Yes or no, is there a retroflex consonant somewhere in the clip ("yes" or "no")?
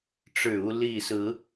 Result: yes